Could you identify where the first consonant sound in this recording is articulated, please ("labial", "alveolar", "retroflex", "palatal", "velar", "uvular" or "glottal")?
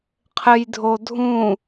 uvular